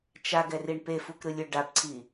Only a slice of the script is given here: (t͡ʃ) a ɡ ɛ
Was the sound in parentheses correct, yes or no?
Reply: yes